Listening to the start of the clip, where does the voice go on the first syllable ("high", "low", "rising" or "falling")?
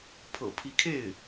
low